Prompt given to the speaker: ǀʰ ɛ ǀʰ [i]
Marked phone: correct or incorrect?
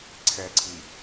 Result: correct